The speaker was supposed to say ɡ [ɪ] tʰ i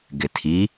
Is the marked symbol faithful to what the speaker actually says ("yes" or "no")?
yes